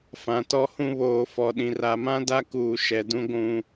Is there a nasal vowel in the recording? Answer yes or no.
yes